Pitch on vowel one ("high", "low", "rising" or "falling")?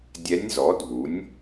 rising